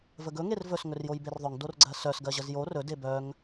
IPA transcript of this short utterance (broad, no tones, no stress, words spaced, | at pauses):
vəɡɵ ŋervɵs ŋɵrjojberðˤœŋ dorɡ͡ǀɜsœs ɡɜʑəzjo rɵ debœŋ